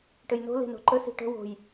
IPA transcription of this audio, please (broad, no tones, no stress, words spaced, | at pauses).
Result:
ʈɘjno̤ le̤no̤ǃə si̤ʈə̤ wo̤j